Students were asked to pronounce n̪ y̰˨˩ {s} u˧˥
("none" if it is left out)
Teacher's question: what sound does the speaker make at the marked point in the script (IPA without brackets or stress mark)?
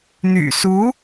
s